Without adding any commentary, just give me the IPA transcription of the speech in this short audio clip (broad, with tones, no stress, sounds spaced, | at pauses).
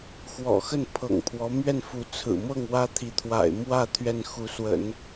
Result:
x w ɔ̰˨˩ x ə˥˩ n pʰ ɤ̰˨˩ ŋ pʰ w ɔ˧˥ m ɥ ɛ˥˩ n f u˧˥ t͡sʰ ɹ̩˨˩ m ɤ˥˩ ŋ w ä˥ t̪ʰ i˧˥ t̪ʰ w a̰˨˩ ɪ̯ m w ä˥˧ t̪ʰ ɥ ɛ˥˩ n x u˧˥ s w ə̰˨˩˦ n